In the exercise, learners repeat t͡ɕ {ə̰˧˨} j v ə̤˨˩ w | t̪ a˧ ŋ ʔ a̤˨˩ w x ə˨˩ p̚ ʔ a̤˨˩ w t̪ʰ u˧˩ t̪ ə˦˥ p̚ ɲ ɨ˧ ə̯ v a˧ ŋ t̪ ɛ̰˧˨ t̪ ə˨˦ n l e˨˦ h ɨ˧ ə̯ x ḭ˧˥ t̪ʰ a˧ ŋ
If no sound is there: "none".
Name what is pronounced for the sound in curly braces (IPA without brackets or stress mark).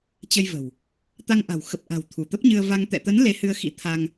ə˧